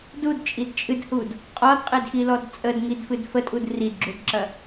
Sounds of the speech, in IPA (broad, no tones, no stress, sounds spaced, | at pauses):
d u d t͡ʃʼ i d t͡ʃʼ ɨ d h u d | qʼ ɒ d qʼ e d x i l ɔ d t͡sʼ ə d ŋ i d f ɨ d f ə tʼ u d r i d ɡ͡ǁ u d ǁ ɐ